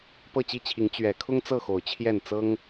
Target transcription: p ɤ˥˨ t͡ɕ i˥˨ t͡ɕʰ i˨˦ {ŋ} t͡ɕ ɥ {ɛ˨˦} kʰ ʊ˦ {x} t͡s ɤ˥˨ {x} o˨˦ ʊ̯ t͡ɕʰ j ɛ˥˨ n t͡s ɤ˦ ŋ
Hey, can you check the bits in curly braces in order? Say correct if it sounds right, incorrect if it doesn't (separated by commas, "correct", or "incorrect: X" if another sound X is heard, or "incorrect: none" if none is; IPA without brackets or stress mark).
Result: correct, correct, incorrect: ŋ, correct